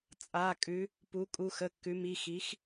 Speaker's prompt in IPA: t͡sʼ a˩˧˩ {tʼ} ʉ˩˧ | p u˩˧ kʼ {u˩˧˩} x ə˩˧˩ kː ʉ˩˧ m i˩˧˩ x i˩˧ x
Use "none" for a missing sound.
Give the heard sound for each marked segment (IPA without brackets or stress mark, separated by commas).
kʼ, u˩˧˩